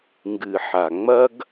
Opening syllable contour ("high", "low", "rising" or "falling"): low